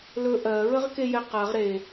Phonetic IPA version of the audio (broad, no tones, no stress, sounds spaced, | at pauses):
l ɵ ʔ ɜ ɹ ə ʁ k e j ɛ q a ʁ ɾ e